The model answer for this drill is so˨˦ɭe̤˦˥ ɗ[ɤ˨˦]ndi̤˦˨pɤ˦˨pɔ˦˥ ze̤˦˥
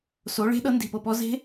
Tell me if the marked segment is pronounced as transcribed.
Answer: no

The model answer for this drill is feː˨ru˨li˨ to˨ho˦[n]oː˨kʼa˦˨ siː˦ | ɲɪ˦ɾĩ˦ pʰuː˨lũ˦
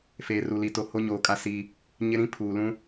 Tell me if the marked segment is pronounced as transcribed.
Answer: no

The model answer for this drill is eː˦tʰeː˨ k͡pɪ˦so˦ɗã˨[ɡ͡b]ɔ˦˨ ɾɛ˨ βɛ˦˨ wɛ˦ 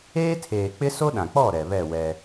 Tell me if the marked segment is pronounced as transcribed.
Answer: no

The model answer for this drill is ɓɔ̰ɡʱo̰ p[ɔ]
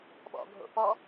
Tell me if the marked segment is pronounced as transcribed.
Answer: yes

